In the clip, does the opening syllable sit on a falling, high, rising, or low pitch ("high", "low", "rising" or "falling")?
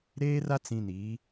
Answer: high